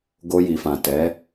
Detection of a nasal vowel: present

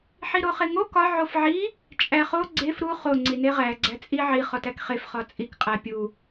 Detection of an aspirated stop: absent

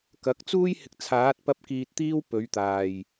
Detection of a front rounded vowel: absent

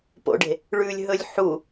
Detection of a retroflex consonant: present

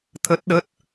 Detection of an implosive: present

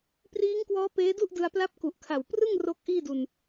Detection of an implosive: absent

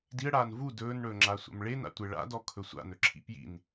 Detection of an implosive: absent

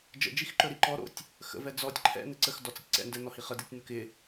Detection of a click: present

